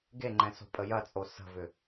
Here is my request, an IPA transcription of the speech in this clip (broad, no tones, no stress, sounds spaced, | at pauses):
ɡ e ŋ͡ǃ ɛ̃ s o̤ pʼ ə j ɐ t͡sʼ o s ə̤ v ʏ